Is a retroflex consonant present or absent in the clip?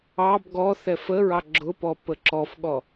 absent